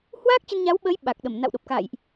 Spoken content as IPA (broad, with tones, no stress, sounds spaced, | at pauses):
h w aː˦˥ k̚ t͡ɕ ə˧ n ɲ a˨˦ w ɓ əː˨˦ j ɓ a˨˩ k̚ ɗ ə˧˩ m n a̰˧˨ w ɗ o˨˩ p̚ k a̰˧˨ j ʔ